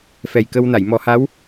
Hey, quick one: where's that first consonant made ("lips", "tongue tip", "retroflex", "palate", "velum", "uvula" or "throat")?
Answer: lips